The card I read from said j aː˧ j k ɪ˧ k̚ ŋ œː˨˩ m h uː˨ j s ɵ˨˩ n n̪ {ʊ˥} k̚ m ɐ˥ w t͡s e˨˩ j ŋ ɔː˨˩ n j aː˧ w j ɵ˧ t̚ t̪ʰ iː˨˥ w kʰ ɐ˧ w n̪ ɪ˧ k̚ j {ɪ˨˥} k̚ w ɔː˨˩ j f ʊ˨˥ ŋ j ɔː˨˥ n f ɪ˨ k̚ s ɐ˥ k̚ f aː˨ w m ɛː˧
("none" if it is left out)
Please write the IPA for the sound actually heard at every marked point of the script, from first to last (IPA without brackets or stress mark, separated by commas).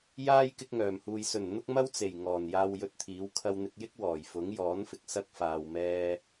ʊ˥, ɪ˥